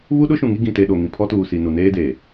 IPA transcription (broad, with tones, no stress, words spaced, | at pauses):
βu˦ɗʊ˦ʃũ˨ŋi˦ ɡĩ˨te˨ ɗo˨ ŋĩ˨pʰɔ˦tuː˨si˨ nu˨neː˦ deː˨